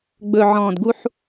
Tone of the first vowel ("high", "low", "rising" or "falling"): low